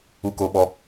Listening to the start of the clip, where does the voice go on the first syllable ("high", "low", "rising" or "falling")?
high